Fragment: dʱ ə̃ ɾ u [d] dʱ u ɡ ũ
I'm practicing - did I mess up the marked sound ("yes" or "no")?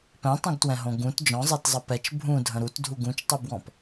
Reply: yes